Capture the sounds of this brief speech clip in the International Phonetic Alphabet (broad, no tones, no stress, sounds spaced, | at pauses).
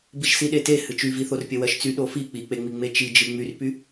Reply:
b i ʃ s i ɗ e t e h ɨ t͡ʃ y v i θ o r pʲ ɜ w ɜ ʃ t͡s y ɗ o f i k͡p i k͡p e ŋ͡m i ŋ͡m e t͡ʃ i d͡ʒ ɨ ŋ͡m y r p y